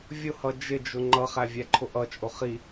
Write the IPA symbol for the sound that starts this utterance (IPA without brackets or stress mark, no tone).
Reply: vʲ